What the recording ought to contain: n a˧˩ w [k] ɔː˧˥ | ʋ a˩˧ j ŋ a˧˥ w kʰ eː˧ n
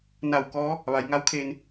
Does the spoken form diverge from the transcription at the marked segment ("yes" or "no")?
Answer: no